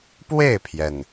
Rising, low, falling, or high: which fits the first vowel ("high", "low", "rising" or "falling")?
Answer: falling